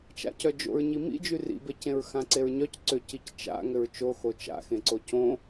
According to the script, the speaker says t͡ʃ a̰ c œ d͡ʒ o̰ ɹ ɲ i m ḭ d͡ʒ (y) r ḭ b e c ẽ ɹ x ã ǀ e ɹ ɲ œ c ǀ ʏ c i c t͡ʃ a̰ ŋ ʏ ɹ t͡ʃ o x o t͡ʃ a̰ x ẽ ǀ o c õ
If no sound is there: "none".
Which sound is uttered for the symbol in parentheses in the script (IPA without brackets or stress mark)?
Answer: y